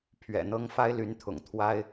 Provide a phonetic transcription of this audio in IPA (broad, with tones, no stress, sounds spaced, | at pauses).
pʰ ɥ ɛ̰˨˩ n̪ ɤ˥ ŋ f a˥ ɪ̯ l y˧˥ n t̪ʰ ʊ̰˨˩ ŋ t̪ʰ w a˥ ɪ̯